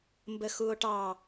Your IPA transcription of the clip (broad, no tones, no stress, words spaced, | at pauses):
mbəxuo̯ʈɑ